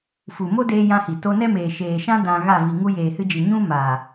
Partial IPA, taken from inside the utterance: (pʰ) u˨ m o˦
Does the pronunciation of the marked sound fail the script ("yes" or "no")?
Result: yes